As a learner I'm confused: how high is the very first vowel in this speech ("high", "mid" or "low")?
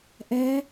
mid